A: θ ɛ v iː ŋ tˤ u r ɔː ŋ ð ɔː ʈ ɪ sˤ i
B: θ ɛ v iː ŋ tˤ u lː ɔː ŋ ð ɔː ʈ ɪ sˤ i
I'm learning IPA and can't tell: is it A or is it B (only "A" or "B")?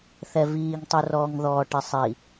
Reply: A